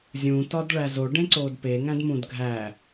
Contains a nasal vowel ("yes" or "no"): yes